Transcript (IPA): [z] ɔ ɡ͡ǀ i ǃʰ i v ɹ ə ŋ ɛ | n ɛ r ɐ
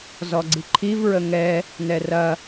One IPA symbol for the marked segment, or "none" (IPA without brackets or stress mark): z